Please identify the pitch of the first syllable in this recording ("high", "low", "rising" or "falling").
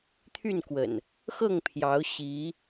falling